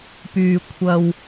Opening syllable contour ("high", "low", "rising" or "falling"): low